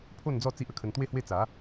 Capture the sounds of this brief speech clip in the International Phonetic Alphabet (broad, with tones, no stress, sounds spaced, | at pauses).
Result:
pʰ o˥˧ n d͡z ɔ˥˧ t͡s i˦ ʔ ə˥˧ kʰ ə˧ n t̪ w e˥˧ h w e˥˧ t͡s a˨˦